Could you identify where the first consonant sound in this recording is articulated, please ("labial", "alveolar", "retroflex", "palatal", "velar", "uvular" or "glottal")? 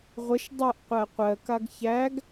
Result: uvular